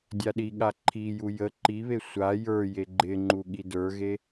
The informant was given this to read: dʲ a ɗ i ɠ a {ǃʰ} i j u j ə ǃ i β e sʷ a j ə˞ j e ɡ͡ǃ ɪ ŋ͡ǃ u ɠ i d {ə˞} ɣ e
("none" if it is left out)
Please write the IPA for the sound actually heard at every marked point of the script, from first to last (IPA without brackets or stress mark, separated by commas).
ǃʰ, ə˞